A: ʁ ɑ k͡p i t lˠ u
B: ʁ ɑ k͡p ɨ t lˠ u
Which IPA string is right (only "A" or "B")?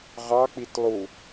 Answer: A